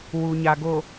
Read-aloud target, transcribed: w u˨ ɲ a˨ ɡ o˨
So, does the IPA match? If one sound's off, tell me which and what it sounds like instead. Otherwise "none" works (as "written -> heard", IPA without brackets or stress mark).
none